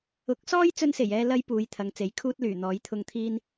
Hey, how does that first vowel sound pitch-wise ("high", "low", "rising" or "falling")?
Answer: rising